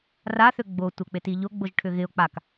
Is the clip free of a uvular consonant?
yes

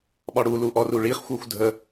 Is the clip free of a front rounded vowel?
no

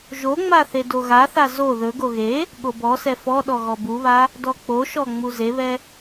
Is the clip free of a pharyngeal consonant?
yes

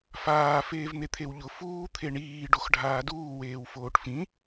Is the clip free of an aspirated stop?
no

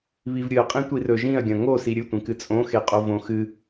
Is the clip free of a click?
yes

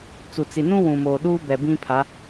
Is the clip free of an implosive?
no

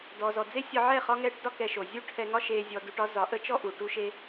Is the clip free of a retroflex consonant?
no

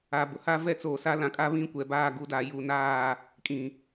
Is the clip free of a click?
yes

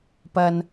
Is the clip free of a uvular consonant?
yes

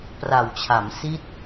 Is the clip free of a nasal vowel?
yes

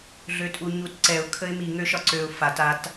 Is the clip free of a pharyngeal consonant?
yes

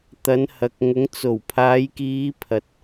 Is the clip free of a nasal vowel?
yes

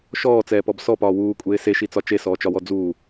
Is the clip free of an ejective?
no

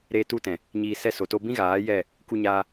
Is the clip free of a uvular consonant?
yes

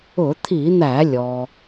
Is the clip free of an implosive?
yes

